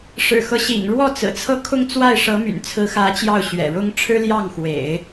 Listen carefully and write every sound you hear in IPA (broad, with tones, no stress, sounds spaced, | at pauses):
ʂ ɻ̩˨˩ x ɤ˦ ɕ ḭ˨˩ ŋ ɻ w ɔ˥˩ t͡s ɹ̩˨˩ t͡sʰ ɤ˥˧ kʰ ʊ˥˧ ŋ t͡s w a˥˩ ɪ̯ ʂ ɤ˧˥ m y̰˨˩ n t͡sʰ ɹ̩˧˥ x ä˧˥ t͡ɕ j ɑ˥˩ ʊ̯ ɕ ɥ ɛ̰˨˩ ɻ ʊ˥ ŋ ʈ͡ʂʰ ɻ̩˥ l j ɑ˥˩ ŋ x w ḛ˨˩˦ ɪ̯